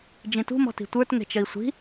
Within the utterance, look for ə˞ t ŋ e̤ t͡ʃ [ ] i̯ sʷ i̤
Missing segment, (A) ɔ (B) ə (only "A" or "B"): B